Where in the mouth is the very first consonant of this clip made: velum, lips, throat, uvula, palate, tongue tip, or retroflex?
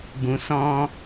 lips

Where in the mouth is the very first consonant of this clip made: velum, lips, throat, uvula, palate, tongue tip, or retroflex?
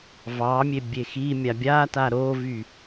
lips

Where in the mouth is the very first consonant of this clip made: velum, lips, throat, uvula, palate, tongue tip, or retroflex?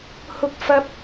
throat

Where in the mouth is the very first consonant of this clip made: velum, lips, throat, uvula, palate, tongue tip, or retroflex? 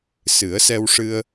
tongue tip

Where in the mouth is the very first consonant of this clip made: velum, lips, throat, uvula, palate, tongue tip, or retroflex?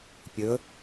lips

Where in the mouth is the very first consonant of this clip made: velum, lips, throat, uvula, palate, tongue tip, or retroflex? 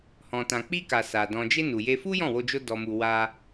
throat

